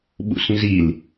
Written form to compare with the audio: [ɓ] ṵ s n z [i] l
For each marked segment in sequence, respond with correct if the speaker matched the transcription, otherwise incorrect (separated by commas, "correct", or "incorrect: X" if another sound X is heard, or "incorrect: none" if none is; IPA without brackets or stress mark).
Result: correct, correct